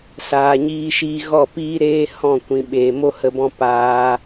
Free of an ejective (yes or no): yes